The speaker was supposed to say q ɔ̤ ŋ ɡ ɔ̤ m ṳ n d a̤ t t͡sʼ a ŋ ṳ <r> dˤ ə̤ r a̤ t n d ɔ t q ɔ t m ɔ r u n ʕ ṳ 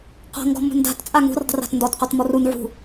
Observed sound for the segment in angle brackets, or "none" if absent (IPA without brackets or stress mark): r